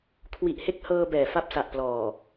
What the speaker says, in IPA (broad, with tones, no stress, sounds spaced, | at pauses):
kʰ w i˨˩ ʔ h e˦˥ k̚ h ɤː˧ b ɛː˨˩ f a˦˥ p̚ s a˨˩ ʔ p l ɔː˨˩